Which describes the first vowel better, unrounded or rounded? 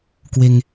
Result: unrounded